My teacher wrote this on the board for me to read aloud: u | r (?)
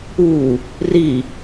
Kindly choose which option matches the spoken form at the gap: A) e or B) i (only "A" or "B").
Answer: B